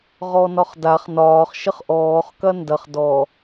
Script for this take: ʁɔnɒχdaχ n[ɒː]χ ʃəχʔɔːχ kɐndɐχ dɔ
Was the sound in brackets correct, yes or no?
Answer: yes